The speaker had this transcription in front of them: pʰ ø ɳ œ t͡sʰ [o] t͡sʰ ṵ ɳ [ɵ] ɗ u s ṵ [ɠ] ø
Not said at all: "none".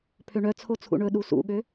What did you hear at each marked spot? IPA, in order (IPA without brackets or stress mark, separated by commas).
o, ɵ, ɠ